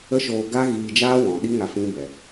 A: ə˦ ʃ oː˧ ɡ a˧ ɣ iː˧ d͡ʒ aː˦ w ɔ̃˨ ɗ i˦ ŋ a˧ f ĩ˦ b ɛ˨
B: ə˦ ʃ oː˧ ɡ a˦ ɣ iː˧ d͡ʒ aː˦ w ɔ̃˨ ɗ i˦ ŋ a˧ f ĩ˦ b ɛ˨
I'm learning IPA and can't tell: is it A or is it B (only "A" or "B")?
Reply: B